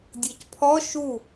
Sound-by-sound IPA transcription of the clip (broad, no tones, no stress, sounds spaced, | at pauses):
dʲ ɤ c pʰ ɔ ʃ u